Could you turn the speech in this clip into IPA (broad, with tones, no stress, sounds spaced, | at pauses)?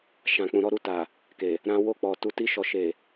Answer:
ʃ ã˨ k͡p ũ˨ ɾ ɔ˨˦ ɾ u˧ t a˨ | k e˨ | ɾ ã˧ w o˧ k͡p ɔ˨ t u˨ t i˧ ʃ ɔ˨ ʃ e˨